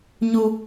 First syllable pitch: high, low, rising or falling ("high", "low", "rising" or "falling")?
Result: low